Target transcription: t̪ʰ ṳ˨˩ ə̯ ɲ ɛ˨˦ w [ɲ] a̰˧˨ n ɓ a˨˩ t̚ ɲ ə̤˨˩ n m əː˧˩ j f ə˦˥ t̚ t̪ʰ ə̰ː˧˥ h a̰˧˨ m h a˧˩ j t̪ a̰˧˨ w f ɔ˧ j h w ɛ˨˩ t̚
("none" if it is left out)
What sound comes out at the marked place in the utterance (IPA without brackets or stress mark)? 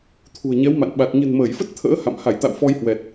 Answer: m